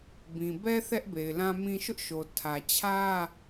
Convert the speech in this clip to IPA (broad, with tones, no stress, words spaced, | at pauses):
bĩ˨ bɛ˦ θɛ˦ʔbe˨ɪ̯lã˦mĩ˦ ʃʊ˦ʔʃo˨ tʰä˨t͡ɕʰä˦